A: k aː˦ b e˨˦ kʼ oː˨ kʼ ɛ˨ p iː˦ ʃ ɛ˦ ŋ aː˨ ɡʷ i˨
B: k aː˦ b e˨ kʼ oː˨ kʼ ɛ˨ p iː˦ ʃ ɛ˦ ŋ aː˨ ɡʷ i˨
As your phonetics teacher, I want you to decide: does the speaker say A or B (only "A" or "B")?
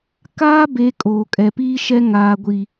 A